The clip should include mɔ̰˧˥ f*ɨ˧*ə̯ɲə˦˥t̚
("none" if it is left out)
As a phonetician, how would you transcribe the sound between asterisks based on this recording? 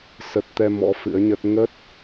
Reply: ɨ̰˧˥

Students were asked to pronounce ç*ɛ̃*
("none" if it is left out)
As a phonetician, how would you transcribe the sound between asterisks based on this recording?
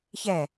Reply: ɛ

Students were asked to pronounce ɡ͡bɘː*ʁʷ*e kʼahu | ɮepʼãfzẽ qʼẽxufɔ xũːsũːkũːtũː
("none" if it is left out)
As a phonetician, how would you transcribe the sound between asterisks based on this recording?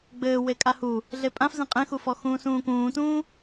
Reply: w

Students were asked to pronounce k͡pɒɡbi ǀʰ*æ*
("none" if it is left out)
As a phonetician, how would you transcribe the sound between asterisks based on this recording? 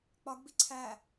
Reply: æ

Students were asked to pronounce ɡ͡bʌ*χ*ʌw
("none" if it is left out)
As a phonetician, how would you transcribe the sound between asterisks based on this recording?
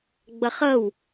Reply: χ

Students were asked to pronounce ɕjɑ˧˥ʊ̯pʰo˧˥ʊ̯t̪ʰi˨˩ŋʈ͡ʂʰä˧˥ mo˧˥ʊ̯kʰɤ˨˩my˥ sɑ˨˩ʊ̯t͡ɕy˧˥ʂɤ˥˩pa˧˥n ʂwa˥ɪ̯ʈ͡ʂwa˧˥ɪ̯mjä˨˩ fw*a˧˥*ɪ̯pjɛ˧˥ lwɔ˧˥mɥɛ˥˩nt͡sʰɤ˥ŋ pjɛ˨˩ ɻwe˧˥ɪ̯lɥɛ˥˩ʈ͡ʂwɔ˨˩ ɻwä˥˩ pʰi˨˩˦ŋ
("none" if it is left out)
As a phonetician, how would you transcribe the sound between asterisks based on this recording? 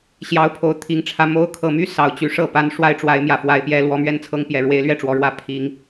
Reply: a˧˥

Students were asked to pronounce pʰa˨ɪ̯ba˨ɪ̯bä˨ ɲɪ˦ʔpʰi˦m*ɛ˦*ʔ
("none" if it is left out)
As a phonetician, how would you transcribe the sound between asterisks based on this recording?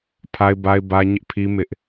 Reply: ɪ˦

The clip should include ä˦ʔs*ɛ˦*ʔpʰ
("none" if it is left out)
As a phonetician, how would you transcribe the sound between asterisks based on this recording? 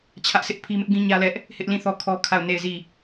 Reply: ɪ˦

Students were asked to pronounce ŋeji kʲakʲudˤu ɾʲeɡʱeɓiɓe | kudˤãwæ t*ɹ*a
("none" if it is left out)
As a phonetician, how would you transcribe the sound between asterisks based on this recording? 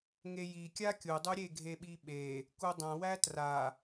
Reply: r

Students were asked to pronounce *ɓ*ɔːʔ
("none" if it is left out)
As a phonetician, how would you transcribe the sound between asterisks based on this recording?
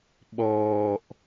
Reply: ɓ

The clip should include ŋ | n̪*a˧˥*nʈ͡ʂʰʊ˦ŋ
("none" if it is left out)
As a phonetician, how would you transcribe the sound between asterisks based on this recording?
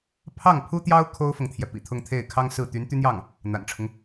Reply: a̰˨˩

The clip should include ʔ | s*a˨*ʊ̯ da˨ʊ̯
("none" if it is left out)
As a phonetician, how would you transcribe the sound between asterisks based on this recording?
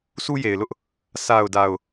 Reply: a˨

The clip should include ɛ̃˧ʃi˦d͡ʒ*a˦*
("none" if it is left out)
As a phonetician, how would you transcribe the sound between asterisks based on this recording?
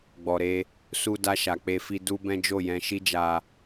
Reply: a˧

